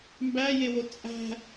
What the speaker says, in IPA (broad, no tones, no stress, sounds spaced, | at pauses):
m b æ j e w o t͡sʼ æ̤